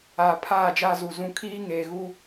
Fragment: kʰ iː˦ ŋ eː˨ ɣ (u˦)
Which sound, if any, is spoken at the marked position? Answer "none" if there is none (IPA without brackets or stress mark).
u˦